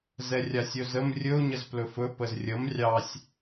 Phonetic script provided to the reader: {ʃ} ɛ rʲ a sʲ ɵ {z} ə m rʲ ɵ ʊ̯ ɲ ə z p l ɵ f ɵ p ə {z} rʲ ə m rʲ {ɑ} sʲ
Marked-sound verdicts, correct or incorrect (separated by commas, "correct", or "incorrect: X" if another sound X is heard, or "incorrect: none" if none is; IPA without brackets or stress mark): incorrect: z, correct, correct, correct